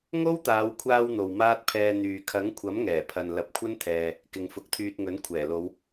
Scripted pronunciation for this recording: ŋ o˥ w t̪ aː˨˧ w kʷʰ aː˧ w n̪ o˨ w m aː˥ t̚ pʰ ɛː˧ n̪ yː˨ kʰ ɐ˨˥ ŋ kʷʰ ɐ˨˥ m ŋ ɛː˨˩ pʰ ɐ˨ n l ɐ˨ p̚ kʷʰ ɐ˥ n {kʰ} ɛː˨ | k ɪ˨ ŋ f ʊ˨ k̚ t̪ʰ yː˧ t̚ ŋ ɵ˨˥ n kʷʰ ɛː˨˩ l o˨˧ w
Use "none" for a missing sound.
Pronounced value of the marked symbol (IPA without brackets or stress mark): t̪ʰ